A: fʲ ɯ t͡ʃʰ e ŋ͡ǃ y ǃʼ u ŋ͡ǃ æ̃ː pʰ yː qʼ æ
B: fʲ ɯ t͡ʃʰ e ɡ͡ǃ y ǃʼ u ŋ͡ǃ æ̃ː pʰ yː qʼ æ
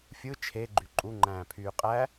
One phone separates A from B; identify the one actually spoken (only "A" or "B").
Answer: B